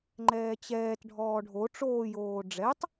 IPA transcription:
ŋ͡ǃ ɛː t͡ɕ ɛː t ɖʱ ɔː ɖʱ o ʈ͡ʂ oː j oː ɖ͡ʐ ɛ tˤ

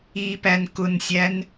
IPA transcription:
i p æ n k ʊ n sʲ æ n

